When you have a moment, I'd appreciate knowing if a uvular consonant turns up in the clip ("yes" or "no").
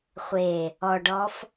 yes